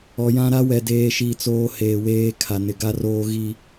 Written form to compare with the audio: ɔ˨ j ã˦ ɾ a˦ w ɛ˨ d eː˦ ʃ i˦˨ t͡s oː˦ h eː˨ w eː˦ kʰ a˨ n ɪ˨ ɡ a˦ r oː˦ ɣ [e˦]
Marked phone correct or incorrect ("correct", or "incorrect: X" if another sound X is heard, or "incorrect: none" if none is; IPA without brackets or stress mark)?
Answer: incorrect: i˦